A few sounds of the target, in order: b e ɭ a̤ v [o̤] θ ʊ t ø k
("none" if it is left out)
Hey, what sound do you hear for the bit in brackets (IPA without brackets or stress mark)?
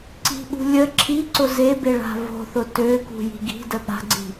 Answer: o̤